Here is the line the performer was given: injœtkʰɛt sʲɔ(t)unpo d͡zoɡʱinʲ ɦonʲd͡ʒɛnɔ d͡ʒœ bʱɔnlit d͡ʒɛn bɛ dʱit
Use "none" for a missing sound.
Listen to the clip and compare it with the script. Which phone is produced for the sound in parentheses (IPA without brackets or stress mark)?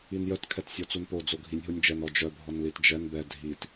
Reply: t͡s